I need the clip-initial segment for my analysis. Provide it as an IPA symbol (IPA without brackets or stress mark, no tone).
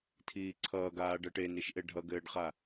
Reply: tʰ